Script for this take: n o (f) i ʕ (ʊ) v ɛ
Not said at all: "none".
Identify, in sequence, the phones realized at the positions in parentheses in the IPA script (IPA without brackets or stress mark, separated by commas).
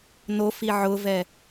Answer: f, ʊ